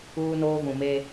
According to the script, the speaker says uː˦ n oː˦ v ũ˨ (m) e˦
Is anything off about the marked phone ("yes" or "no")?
no